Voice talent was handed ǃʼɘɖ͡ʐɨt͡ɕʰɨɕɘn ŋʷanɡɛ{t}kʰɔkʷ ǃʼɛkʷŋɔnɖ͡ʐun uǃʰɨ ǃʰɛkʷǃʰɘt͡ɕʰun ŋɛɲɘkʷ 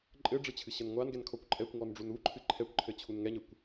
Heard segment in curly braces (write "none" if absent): n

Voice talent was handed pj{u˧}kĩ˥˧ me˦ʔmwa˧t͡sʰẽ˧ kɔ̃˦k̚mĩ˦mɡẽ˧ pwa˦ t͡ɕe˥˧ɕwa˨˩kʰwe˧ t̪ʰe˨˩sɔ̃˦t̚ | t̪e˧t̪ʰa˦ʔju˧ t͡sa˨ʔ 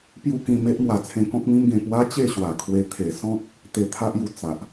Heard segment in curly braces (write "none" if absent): u˥˧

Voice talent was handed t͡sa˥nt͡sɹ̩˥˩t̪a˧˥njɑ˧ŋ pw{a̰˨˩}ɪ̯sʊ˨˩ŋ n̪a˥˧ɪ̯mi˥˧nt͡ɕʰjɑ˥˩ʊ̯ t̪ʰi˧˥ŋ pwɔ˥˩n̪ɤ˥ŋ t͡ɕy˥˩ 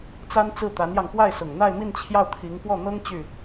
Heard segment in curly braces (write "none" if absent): a˥˩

